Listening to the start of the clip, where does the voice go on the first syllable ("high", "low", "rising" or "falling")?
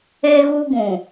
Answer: high